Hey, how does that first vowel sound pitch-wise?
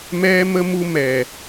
high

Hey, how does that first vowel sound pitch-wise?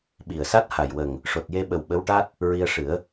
low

